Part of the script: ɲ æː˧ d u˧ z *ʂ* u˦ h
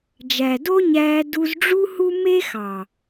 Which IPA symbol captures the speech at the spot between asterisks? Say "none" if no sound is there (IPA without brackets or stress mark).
ɖ͡ʐ